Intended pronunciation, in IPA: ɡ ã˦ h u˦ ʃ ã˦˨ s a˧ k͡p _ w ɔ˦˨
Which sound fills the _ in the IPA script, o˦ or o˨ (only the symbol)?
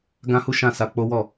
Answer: o˦